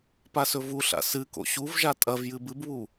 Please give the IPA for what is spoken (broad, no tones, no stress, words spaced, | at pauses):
pasɵvuɬa̰ sɨko̰ ɕuv ʒatʼɐvjɨ bɨbβu